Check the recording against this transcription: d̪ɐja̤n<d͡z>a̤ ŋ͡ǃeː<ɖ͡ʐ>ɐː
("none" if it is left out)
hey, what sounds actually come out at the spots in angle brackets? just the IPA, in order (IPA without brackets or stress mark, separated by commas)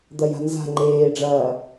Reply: z, ɖ͡ʐ